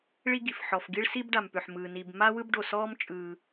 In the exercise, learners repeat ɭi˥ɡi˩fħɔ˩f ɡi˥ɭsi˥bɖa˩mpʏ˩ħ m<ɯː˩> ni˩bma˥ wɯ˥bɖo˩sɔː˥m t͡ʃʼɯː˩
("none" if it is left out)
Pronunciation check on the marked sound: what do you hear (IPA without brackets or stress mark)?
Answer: ɯː˩